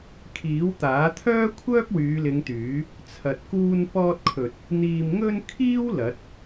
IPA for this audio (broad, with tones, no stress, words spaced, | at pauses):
kʰiː˨˥wt̪aː˨˥t̪ʰœː˥kʷʰœː˥p̚ wyː˨˧lɪ˨˧ŋt̪yː˨˥ | t͡sʰɐ˨t̚kuː˧n pɔː˧t̚kʰɵ˨t̚ | n̪iː˨mŋɵ˧n kʰiː˥w lɐ˨˥t̚